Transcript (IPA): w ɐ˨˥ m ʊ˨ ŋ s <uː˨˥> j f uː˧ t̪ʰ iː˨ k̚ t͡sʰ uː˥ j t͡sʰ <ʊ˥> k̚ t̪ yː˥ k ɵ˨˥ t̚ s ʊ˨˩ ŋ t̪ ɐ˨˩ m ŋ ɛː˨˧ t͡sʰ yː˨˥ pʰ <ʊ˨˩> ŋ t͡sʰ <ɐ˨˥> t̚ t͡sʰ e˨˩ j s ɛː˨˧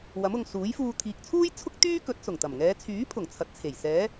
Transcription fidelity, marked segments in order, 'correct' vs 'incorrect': correct, correct, correct, correct

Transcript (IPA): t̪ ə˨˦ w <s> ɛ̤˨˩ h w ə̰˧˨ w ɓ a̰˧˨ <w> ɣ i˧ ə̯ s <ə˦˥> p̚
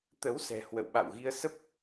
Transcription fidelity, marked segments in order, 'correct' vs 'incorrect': correct, correct, correct

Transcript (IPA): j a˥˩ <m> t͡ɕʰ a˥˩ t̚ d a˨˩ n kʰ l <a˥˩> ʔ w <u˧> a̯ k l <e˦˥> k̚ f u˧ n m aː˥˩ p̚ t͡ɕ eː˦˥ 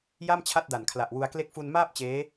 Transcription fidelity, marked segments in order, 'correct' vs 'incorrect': correct, incorrect: a˨˩, correct, correct

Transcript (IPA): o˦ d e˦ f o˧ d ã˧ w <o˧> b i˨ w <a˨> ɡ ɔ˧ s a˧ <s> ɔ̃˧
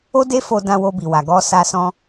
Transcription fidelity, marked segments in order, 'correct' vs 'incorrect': correct, correct, correct

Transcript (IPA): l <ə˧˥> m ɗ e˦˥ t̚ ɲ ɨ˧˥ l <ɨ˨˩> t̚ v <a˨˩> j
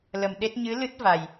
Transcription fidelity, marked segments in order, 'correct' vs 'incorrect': incorrect: ə˨˩, incorrect: ɨ˦˥, correct

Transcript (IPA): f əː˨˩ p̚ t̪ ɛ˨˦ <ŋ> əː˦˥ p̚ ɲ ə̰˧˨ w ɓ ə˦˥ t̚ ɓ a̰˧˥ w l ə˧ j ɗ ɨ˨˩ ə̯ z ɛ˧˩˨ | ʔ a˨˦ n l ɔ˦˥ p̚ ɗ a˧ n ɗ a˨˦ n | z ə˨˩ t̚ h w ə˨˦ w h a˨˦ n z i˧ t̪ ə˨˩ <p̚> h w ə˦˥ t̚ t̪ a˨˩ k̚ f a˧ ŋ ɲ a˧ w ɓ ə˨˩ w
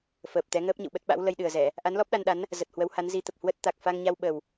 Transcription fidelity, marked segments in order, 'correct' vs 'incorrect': correct, correct

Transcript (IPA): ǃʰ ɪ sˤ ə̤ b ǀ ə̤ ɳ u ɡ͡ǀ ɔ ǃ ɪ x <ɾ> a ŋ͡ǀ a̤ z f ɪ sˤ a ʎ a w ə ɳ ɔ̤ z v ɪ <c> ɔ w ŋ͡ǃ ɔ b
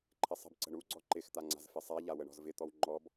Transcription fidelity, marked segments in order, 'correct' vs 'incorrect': incorrect: t̪, incorrect: t̪

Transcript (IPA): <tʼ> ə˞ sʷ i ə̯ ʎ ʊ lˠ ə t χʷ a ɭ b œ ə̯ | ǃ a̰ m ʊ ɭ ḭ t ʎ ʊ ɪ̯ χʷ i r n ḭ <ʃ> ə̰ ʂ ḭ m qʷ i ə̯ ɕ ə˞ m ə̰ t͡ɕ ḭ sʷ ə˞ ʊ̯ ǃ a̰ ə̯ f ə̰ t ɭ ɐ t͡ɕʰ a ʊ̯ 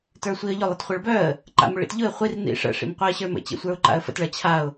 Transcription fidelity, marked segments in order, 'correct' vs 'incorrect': incorrect: t, incorrect: ʂ

